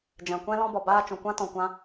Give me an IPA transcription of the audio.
d͡ʒ ɛ̃˨ kʷ ɛ̃˧ l ɔ̃˧ b ɔ˨ b aː˧ t͡ʃ ũ˨ kʷ ã˧ t ɔ̃˨ kʷ ã˧

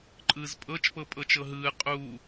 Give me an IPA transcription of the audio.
ǃʼ ɯː z pʼ ɤ t͡ʃ p ɤ pʼ ɤ t͡ʃ ɤ ɦ ɯː qʼ u

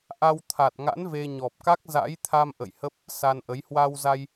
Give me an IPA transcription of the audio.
ʔ a˧ w t̪ʰ a˨˩ t̚ ŋ a̰˧˥ n v e˧ ɲ ɔ˨˩ p̚ k a˦˥ k̚ z a̰˧˥ j t̪ʰ a˧ m ʔ ə̰˧˨ j h ə˦˥ p̚ | s a˧ n ʔ ə˨˦ j h w a˧ w z a˧ j

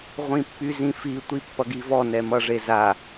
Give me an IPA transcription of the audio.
ʁʷ ĩ pː y z ĩ f i tʷ i pː ʌ ɡ i v ɔ n ɛ m ʌ ʐ e z a

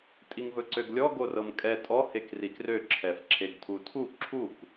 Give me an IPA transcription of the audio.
tʼ i ŋ v ɵ ǀ ø ɡ lʲ ɔ ɡ o r ɤ m kʼ ɛ tʼ ɔ h e k r i k r ø ǁʰ ɛ f ǁʰ e ɡ tʰ u tʰ u ǁʰ u k

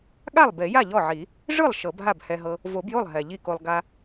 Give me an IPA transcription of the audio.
ɠ a˥˩ lˠ b e˨˩˦ j a˥˩ ʎ ɔ˥˩ ʕ i˨˩˦ | ʐ ɯ˥˩ lˠ ʃ ɤ˨˩˦ b ɦ a˥˩ b h ɛ˧ ɦ ɤ˧ | v o˨˩˦ b j o˥˩ lˠ ɦ ɛ˨˩ ʎ i˥˩ k o˧ lˠ ɡ a˧

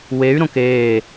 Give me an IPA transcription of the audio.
w e y̯ ɾ õ k eː

